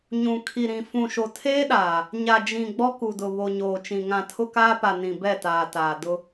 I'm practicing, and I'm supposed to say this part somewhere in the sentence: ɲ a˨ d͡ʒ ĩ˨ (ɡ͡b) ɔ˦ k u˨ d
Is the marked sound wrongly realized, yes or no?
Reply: no